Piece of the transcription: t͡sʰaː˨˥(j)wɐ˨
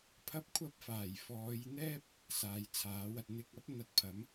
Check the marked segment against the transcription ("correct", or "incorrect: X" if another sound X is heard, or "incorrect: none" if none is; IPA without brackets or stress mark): incorrect: none